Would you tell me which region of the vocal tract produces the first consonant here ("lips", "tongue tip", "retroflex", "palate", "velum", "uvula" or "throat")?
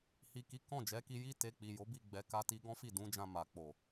throat